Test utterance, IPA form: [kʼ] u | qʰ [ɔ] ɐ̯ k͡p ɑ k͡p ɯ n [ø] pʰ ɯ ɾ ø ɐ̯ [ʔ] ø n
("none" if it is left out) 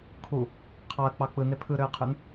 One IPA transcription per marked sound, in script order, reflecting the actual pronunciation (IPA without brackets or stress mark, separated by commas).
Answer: kʰ, ɑ, e, qʰ